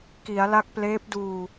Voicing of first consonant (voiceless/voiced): voiceless